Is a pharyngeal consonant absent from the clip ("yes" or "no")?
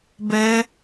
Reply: yes